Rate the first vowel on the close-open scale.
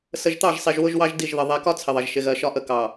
mid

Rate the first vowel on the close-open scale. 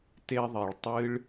mid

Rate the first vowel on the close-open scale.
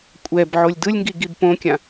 mid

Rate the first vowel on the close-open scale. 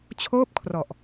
mid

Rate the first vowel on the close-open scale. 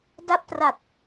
open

